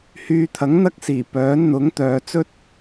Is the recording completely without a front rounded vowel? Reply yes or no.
no